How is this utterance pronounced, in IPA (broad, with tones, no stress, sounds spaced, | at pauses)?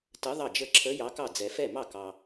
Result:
t ə˧˥ ðˤ ɑ˥˩ d͡ʒ ə˥˩ ǁʰ ə˧˥ j ɑ˧˥ k ɑ˥˩ d͡z ɛ˨ f ɛ˥˩ m ɑ˥˩ k ɑ˨